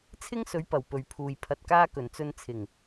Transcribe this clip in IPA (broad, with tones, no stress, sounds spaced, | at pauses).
t͡sʰ ɪ˥ ŋ s ɵ˨˥ ɥ p ɐ˨˩ w p ɵ˨ ɥ pʰ uː˨ j pʰ ɐ˧ t̚ k aː˥ k ɵ˨˩ n t͡s ɵ˧ n t͡sʰ ɪ˨˩ ŋ